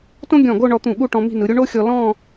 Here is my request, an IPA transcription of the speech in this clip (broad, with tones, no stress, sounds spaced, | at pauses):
t õ˥ ɡʲ ɔ̃˧˩ ɡ o˥˧ ɳ ɔ˧ t̪ ũ˧˩ ɠ u˥˧ ʈ ɔ̃˧ m i̤˥˧ n ɯ˩˧ ɾʲ u˥ ɳ o˥ xʲ ɔ˧ l ɔ̃˥˧